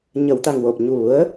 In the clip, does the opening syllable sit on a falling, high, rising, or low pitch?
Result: low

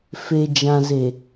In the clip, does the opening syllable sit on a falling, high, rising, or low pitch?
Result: low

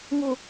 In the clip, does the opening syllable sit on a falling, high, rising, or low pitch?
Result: low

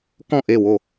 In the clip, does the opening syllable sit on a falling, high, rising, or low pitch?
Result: falling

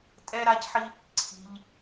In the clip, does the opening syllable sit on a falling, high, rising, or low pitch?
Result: high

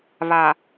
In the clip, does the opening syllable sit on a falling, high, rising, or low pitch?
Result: low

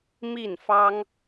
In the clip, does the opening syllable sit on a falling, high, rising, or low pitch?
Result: falling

